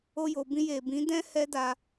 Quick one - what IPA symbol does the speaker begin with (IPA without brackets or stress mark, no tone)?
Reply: o